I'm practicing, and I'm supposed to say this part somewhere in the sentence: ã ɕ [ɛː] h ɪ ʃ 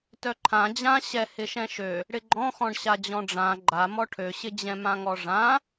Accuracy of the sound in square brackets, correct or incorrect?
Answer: incorrect: ɛ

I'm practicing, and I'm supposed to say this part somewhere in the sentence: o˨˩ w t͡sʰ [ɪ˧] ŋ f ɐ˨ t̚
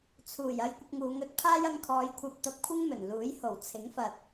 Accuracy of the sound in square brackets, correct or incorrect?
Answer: incorrect: ɪ˨˥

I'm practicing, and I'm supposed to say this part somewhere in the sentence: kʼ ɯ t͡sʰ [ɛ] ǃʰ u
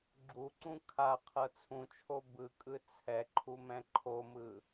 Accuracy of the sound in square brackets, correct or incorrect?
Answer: correct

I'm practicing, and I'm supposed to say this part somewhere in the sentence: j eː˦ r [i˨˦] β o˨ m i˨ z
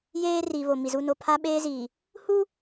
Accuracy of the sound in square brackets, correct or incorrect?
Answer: incorrect: i˨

